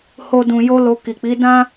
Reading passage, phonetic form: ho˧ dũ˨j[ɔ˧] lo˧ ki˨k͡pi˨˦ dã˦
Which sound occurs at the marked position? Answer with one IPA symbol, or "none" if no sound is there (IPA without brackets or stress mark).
o˧